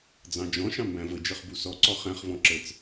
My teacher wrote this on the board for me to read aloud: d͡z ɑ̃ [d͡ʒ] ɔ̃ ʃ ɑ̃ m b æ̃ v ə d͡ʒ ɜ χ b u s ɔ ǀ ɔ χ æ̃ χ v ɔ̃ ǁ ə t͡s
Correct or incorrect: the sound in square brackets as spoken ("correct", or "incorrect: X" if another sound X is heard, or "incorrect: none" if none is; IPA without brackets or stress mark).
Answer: correct